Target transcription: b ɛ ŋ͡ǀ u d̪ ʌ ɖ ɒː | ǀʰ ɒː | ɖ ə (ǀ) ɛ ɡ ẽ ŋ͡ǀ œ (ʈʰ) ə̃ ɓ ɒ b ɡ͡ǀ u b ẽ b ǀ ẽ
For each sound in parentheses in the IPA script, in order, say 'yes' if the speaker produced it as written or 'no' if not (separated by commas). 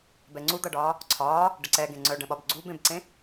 yes, no